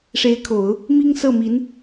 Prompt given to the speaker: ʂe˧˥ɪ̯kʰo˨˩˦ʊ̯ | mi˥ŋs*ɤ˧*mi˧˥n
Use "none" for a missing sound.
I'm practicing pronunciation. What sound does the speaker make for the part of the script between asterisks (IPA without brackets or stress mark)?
ɤ˥˩